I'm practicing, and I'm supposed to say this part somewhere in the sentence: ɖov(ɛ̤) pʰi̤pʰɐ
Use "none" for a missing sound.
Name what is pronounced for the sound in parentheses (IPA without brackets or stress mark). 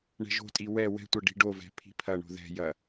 ɛ̤